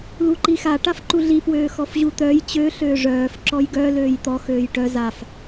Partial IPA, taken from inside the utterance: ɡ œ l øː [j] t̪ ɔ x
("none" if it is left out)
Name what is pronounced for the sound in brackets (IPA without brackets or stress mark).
j